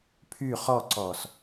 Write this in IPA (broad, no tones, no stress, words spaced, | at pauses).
pʰy χɔǀɔːs